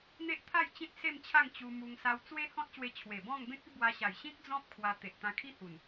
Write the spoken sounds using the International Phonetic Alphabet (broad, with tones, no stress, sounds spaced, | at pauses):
n̪ e˦ ʔ t̪ʰ a˥˧ j t͡ɕ ĩ˦ t̚ s e˥˧ m t͡ɕʰ a˥˧ ŋ t͡ɕ u˧ m u˧ ŋ s a˧ w t͡s w e˦ h ɔ̃˦ t̚ ɕ w e˧ t͡ɕʰ w e˨˩ b ɔ̃˥˧ ŋ b ẽ˦ k̚ i˦ b w a˧ ɕ a˨˩ j ɕ ĩ˦ k̚ d͡z ɔ̃˦ p̚ kʰ w a˧ t̪ e˨ ʔ t̪ ã˧ kʰ i˦ h u˨˩ n